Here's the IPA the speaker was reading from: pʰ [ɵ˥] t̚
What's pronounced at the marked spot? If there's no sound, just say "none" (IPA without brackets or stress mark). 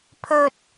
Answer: ɵ˥